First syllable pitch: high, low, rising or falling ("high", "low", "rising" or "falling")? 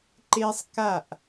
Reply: high